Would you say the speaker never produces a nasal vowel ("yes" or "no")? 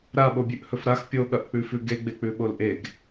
yes